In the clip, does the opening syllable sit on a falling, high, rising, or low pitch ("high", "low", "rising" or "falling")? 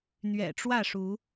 low